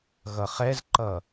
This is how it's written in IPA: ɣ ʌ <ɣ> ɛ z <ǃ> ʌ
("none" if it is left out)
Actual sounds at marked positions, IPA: χ, ǃ

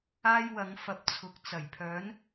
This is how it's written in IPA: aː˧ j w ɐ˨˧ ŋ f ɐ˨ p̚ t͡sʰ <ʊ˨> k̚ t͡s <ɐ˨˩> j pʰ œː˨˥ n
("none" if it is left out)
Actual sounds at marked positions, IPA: ʊ˨, ɐ˨˩

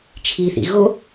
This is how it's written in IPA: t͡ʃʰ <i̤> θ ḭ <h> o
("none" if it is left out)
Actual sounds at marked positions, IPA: i, ɣ

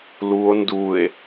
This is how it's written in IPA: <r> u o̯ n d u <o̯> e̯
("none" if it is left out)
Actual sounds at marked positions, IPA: l, none

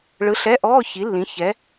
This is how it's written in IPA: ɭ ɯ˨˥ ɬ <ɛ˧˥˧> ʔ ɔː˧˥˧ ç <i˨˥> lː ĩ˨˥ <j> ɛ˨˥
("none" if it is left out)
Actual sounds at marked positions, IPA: ɛ˧˥˧, i˨˥, ç

